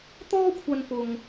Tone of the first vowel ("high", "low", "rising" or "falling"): high